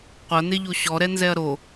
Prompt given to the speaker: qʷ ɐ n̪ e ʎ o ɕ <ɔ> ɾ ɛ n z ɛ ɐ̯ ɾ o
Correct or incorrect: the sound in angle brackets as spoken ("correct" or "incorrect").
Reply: correct